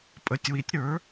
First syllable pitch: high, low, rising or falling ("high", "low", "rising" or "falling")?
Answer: rising